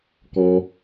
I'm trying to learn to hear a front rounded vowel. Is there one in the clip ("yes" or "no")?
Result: no